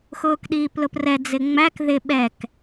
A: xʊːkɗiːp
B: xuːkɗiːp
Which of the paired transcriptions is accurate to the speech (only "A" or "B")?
A